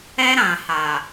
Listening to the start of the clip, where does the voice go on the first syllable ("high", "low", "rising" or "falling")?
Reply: high